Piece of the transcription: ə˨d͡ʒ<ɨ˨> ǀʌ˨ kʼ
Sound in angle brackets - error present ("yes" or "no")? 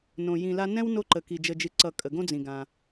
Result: no